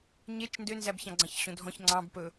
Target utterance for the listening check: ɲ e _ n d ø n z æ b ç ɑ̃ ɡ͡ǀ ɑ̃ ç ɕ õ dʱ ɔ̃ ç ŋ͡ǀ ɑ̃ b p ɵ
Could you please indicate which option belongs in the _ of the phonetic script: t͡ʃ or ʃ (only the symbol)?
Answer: t͡ʃ